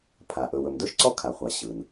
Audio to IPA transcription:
pʰa˩ ʔɵ˩wɵ˩mdɵ˥ʃǀɔ˥ kʰa˩χʷa˩ ɕɯ˩n

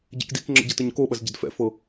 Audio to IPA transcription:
ɟɛ̰kdikŋ͡ǁə̰ ɟɐtəɲkoɓɐz ɟə̰dfɛ̰fɤ

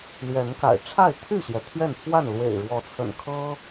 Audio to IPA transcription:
lɥɛ˨˦nka̰˨˩ɪ̯ ʈ͡ʂʰa˥˨ɪ̯t̪ʰy˥˨ɕjɛ˩ t̪ʰɥɛ˥˨npʰwa˥˨n lwḛ˨˩ɪ̯ɻwɔ˨˦t͡sʰə̰˨˩n kʰɤ˦

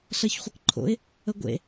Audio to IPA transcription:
ɬɜçχʷɘkǃʰo̰ɪ̯ | əɡʷḛ

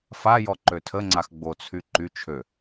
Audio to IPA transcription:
fajɔ ǃøtʰəŋ͡ǀax ɡ͡bot͡sʰy ǃy t͡ʃʰø

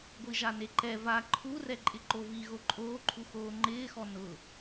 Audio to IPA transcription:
ɡʷiʒaneǃɛ va ǃʰurɛ ǃʼɪǃovi ɣoǃʼoːǃʰu xoːŋ͡ǃɪːxɔ nʊ

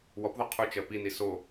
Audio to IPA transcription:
wɔpðɔ qʰut͡ʃɜ pini so

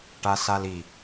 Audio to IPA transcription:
ʈasali

